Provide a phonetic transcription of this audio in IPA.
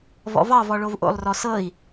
v ɔ̰ v ɑ v ɔ ɭ o v ʔ o̰ lˠ r ɔ s ɤ i̯

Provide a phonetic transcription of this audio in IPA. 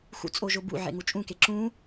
x ṵ t͡sʼ o ʒ o b ṵ ʕ ḛ ŋ u t͡ʃʼ ũ k e ǁ ũ

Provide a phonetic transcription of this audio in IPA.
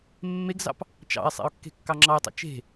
mː e ɡ z ɑ̰ p | t͡ʃ ɑ̰ ɪ̯ sˤ ḛ ʊ̯ kː e̤ kː ɑ ŋ͡ǁ ɑ j tˤ ɛ̰ t͡ʃ e̤

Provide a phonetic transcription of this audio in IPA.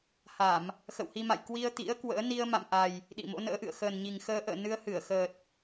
h a˧˩˨ m | x ə̰˧˨ w h i˧ m a̰˧˨ j k w i˧ ə̯ t̪ ḭ˧˥ ə̯ k w ə̰ː˧˥ n i˧ ə̯ m a̰˧˨ m ʔ a˨˩ j | ɗ ḭ˧˨ m o̰˧˥ n ə̰ː˧˥ ʔ ɨ̰˧˨ ə̯ x əː˨˩ n ɲ i˨˩ ŋ x əː˧ ʔ ə̰ː˧˨ n ɨ˧ ə̯ h ɨ˧˩ ə̯ x əː˨˩ t̚

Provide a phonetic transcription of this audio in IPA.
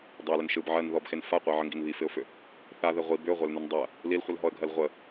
dˤ ɜ l ɪ n ʃ ɯ b ʕ ɜ n ð ɔ b x e n f a qʷ i ʕ ə ŋ ɡ i n β i f ɪ ʊ̯ f ʏ | θ a ð ɪ ʁʷ i b ʏ ʊ̯ ʁʷ e l n ɪ n dˤ ɜ | l i l χʷ ɪ l ɦ ɔ ə̯ ɡʱ ɜ l ʁʷ ə

